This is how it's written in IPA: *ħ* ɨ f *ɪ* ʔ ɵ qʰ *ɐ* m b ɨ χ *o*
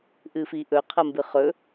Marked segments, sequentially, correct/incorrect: incorrect, incorrect, correct, incorrect

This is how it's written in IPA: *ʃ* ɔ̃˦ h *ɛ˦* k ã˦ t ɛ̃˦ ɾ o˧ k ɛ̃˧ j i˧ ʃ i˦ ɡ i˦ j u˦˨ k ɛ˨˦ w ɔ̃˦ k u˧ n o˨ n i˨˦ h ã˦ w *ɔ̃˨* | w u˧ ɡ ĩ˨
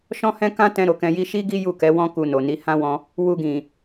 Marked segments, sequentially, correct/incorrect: correct, incorrect, incorrect

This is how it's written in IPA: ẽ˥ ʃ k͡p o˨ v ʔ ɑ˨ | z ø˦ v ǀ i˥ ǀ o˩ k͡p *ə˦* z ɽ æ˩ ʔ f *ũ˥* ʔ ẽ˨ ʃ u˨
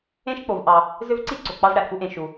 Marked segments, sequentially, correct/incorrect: incorrect, incorrect

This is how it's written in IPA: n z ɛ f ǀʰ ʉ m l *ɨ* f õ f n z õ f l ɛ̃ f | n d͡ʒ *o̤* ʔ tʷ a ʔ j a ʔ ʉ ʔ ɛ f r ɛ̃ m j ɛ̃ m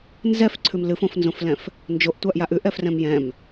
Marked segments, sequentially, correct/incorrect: correct, incorrect

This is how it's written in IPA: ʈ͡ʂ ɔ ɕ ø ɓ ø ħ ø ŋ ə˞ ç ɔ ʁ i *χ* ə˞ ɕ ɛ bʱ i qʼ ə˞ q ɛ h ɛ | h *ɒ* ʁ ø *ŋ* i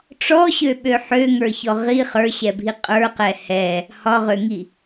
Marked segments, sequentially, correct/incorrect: correct, correct, correct

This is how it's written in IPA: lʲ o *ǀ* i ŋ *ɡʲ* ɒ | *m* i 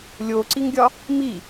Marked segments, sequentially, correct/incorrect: correct, correct, correct

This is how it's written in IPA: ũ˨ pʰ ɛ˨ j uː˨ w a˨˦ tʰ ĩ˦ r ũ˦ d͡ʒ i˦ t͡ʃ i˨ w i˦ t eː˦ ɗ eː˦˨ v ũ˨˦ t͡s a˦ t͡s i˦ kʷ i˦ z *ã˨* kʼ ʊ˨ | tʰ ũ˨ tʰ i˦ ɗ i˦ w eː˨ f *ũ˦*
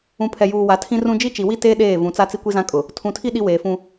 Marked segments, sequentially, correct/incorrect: incorrect, correct

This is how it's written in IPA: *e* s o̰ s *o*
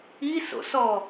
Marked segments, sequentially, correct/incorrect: incorrect, incorrect

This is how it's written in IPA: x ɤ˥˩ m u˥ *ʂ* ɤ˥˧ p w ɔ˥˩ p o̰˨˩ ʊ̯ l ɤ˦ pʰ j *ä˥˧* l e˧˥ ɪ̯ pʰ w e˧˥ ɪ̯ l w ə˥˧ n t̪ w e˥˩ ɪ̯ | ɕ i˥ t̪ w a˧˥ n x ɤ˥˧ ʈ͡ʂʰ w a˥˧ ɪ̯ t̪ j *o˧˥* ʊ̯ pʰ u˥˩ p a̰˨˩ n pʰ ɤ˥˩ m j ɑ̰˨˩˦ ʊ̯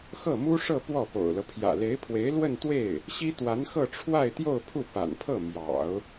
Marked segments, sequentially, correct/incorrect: correct, incorrect, incorrect

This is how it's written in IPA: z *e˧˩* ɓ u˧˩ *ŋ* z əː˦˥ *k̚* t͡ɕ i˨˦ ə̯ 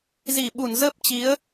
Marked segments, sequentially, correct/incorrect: incorrect, incorrect, incorrect

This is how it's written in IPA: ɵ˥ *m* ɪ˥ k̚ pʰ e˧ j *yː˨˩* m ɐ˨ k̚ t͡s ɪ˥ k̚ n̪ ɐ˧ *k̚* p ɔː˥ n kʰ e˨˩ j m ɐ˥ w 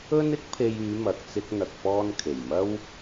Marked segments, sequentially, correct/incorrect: incorrect, incorrect, correct

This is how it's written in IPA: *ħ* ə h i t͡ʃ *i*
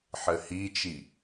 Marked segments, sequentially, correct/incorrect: correct, correct

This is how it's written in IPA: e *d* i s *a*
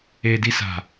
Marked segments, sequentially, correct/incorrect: correct, incorrect

